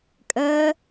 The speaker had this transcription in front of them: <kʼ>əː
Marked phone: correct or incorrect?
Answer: correct